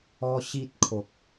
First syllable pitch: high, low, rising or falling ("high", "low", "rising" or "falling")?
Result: high